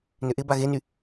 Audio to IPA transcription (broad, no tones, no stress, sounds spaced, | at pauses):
n ʏ ʔ ɪ b a ɣ e n y